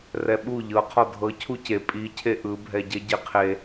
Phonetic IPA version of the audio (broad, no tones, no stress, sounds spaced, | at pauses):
r ɛ ɓ u ʎ ɤ qʰ ɔ dʱ ɤ cʰ u c e pʼ i cʰ e ʔ ɯ bʱ ɛ ɟ ɛ ɟ e qʰ e